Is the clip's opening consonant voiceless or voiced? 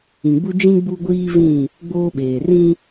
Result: voiced